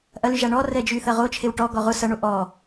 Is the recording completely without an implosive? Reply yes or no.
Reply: yes